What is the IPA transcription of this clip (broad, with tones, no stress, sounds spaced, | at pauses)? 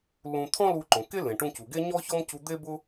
l ũ˧ t̪ʰ ɔ̃˥ l u˧ ǃ õ˩ k e˥ l ẽ˩ ʈ ũ˧ c u˩ ɡ e˥ ɲ ɔ˥ ç ɔ˥ m c u˧ d̪ e˥ b ʊ˥